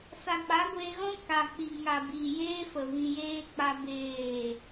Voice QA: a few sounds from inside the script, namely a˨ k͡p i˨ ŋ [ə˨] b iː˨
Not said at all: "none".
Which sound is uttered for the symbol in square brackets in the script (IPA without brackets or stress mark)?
a˨